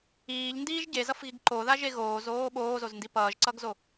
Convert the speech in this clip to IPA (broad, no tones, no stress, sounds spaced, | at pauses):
iː ʎ n d iː ʒ ɟ e z ʌ f ɣ i ɡ ǃ o ð a ʒ e ɣ oː z oː ɓ oː z o z n d i p ʌː ʒ ǀ ʌ ɡ z o